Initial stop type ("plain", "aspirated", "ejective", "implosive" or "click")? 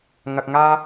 plain